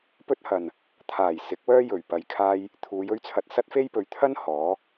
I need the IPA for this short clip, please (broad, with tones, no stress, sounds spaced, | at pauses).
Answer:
p ɵ˥ t̚ h ɐ˨ n | t̪ʰ aː˨˩ j s ɪ˨˥ k̚ w œː˥ j ɵ˨˩ ɥ p ɐ˧ j kʰ aː˥ j | t̪ʰ uː˨˧ j ɵ˥ ɥ t͡sʰ ɐ˧ t̚ s ɐ˥ t̚ f e˥ j p ɵ˨˧ ɥ t̪ʰ ɐ˥ n h ɔː˨˥